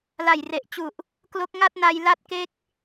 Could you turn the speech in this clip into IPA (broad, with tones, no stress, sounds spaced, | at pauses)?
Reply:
l a˨˩ j r e˨˩ ʔ t͡ɕ u˨˩ ʔ | k l o˦˥ k̚ ŋ a˥˩ t̚ n a˧ j l a˥˩ t̚ k e˥˩ k̚